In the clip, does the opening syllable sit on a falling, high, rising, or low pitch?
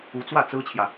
rising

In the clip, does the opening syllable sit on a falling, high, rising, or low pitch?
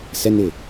high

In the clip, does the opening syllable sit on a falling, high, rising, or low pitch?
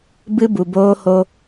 high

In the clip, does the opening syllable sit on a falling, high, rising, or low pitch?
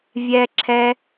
high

